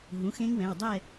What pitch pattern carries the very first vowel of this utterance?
rising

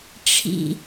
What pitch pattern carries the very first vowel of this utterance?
low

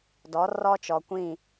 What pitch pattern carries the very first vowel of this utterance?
rising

